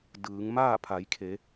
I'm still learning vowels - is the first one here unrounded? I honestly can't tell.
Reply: yes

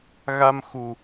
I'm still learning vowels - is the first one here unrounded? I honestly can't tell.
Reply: yes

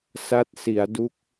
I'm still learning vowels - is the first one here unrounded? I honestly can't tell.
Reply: yes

